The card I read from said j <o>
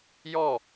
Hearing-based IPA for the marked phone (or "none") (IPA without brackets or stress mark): ɔ